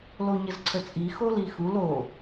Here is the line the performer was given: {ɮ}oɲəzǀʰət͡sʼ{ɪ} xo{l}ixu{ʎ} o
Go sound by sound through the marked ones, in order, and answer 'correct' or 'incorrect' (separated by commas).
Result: incorrect, incorrect, correct, incorrect